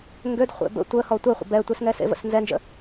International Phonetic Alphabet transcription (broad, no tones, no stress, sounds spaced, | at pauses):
ŋ ɡ ø d χʷ ḛ b ə̰ tʷ ə h ɔ tʷ ɛ χʷ ə̰ b ɛ tʷ e s ŋ ɛ s ḛ v ə̰ s n z ɛ n d͡ʒ ə̰